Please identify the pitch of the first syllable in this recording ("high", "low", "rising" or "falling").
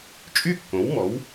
falling